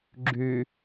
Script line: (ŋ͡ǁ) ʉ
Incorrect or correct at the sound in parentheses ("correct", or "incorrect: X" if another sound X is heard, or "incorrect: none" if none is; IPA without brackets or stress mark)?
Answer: incorrect: ɡ͡ǁ